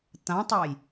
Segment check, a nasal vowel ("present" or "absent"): present